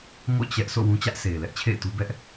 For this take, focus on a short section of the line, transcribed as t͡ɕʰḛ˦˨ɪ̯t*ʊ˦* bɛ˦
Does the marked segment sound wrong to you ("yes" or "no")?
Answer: yes